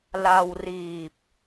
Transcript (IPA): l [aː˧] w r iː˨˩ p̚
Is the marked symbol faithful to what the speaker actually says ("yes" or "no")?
no